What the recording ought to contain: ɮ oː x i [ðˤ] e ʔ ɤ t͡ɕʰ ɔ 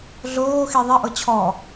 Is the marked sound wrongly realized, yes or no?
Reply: no